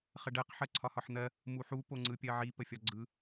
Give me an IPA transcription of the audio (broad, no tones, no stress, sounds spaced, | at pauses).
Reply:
χ ə ɖ ɜ q ħ ɜ ǀʰ ɒ h ɒ ħ n̪ ɜ | m u ħ u p o ŋ͡ǀ ɯ pʲ ɜ ʕ i p ə fʲ ɒ ɡ͡ǀ ɯ